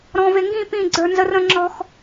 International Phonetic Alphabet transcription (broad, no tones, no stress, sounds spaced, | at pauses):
ɾ ɔ̃ v e ŋ ɡ ĩ p ĩ ɡ͡ǀ ə˞ n z ə r ə̃ ŋ͡ǁ ɔ x